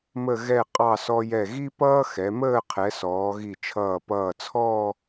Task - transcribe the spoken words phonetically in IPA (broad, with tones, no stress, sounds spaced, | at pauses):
m ə˥˧ ɣ ɛ˥˧ qʼ ɑ˥˧ s ɔ˧ j ɛ˧˩ ɣ i˥ p ʌː˥ x ɛ˩˧ m əː˥˧ qʰ ɛ˩˧ s ɔː˩˧ ɣ i˧˩ t͡ʃʰ ʌː˧˩ p ʌː˧˩ t͡sʰ ɔː˥˧